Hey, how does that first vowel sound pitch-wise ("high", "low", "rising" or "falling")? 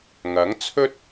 rising